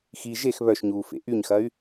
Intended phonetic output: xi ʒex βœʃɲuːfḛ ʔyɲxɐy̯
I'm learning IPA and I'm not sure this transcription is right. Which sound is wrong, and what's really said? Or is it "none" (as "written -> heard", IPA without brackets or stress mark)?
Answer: none